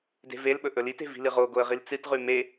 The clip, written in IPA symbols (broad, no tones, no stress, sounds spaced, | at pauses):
d e̤ v e l ɓ ɵ ʔ ɵ l i t e̤ v i̤ l ɨ ʁ o ɡ o ə̯ ʁ i l t͡s ɨ t ʁ ʉ m e